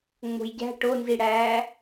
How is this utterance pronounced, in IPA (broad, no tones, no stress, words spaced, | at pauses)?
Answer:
ŋ͡mo̤jɟæ̤ ʈonziɽæː